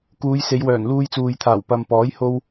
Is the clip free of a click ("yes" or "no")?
yes